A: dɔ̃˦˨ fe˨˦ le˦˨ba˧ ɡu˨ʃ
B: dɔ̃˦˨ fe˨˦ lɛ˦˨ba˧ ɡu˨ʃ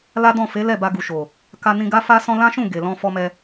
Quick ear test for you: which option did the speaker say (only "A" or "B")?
B